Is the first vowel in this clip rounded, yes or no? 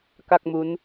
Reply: no